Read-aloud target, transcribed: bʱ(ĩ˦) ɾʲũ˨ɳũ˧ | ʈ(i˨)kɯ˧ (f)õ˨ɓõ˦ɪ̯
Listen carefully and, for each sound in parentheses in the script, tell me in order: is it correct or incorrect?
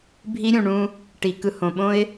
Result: incorrect, correct, incorrect

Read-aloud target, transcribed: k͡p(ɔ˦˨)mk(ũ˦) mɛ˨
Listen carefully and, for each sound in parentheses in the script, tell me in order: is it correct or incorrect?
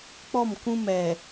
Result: correct, correct

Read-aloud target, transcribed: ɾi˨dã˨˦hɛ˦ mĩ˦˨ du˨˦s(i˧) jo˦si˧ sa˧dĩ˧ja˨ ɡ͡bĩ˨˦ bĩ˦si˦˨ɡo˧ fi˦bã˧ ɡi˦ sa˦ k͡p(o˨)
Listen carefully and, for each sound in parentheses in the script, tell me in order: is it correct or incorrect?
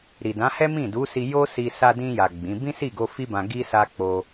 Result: correct, incorrect

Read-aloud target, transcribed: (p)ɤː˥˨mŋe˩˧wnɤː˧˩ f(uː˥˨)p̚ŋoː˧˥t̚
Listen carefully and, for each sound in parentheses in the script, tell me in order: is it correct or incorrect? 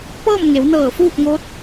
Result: correct, correct

